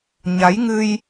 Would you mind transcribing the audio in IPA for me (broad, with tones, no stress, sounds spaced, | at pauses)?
ɲ a˨˦ j ŋ ɨ˧ j